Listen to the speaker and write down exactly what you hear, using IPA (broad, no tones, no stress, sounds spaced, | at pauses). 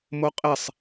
m o qʼ e sˤ